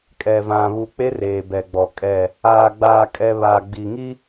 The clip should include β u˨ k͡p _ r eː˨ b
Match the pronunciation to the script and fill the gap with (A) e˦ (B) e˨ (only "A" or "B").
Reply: A